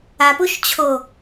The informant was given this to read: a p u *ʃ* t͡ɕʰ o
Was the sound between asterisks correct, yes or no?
yes